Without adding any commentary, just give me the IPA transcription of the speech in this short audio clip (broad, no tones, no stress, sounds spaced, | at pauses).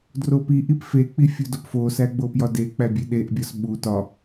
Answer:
d r o p i ʔ i p f e k͡p i fʲ u d o p f o s æ ɡ͡b o p j ɒ d e k͡p æ bʲ e ɗ e ʔ bʲ ɒ s ɓ u t ɒ